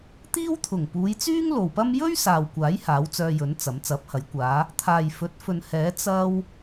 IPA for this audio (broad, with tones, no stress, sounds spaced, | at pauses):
t̪ iː˥ w t̪ʰ ʊ˨˩ ŋ p uː˨˧ j t͡s yː˥ ŋ l o˨ w p ɐ˥ m j ɵ˥ ɥ s aː˨ w kʷ aː˨˥ j h aː˨˥ w t͡s œː˧ j ɵ˨˥ n t͡s ɐ˨˥ m t͡s ɐ˨˥ p̚ h ɐ˨˥ j kʷ aː˨˧ | t̪ʰ aː˨ j f ɵ˨˥ t̚ f ɵ˨ n h ɛː˨˥ t͡s ɐ˥ w